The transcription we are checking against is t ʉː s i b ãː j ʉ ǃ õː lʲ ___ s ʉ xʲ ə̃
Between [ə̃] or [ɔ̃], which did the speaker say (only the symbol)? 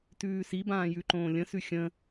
ə̃